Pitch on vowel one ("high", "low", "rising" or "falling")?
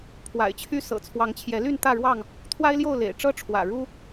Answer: low